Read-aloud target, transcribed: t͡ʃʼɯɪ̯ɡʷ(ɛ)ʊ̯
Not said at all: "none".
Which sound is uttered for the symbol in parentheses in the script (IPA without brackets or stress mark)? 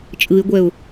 ɛ